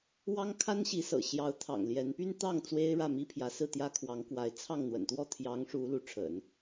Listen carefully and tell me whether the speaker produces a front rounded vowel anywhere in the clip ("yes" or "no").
yes